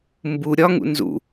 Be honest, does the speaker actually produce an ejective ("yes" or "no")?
no